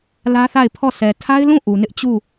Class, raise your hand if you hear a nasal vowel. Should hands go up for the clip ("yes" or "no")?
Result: yes